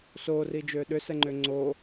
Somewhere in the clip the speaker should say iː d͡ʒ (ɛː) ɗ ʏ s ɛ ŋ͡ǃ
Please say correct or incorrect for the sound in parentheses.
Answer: incorrect